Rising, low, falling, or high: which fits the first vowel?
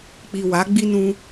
low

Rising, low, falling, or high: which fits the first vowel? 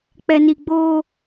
low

